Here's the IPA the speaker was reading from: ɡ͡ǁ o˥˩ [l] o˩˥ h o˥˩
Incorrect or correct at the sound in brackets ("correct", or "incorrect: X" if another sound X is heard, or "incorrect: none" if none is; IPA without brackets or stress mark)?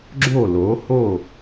correct